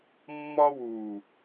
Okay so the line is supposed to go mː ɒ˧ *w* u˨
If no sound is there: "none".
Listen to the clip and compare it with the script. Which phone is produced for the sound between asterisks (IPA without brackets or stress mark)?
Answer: w